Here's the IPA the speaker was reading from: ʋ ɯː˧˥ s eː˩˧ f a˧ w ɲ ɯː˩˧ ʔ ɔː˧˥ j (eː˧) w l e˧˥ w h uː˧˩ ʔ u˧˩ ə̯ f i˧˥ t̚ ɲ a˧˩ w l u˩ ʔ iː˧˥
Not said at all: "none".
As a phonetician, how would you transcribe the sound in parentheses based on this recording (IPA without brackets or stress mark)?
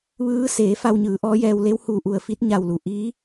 ɛː˧